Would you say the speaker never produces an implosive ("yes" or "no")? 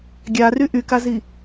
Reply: yes